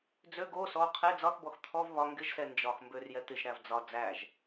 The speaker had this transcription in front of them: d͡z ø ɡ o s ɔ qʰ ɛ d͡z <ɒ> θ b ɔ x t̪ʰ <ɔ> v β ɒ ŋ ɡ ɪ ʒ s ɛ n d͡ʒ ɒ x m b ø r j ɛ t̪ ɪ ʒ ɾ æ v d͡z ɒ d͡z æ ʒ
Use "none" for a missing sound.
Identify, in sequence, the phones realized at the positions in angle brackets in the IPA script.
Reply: ɒ, ɔ

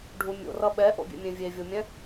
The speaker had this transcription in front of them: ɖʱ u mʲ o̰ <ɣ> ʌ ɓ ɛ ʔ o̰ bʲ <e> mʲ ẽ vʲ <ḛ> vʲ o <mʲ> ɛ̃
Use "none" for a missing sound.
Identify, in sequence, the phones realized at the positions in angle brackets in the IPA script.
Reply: r, ḛ, e, mʲ

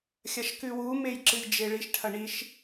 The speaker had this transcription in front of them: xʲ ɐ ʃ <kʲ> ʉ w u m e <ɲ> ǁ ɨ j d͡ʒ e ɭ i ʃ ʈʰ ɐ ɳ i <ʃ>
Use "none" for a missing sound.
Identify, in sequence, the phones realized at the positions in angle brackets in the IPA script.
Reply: k, j, ʃ

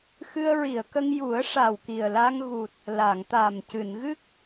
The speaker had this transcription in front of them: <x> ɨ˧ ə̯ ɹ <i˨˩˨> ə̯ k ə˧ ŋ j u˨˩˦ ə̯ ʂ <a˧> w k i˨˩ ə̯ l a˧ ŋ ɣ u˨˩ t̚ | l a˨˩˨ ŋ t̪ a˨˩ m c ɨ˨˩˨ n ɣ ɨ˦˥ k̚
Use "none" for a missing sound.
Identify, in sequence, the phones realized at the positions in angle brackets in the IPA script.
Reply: x, i˨˩˨, a˨˩

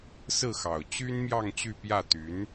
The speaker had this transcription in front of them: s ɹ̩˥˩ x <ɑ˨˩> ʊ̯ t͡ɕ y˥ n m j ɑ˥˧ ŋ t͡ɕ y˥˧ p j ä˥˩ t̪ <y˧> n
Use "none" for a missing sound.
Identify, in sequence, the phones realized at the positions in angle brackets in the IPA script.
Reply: ɑ˨˩, y˧˥

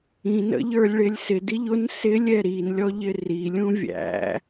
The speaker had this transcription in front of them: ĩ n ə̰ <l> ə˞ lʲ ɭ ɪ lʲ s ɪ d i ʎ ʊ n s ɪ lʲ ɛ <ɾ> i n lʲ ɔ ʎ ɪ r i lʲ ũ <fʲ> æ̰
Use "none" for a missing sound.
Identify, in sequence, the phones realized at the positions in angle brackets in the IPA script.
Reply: ʎ, ɾ, vʲ

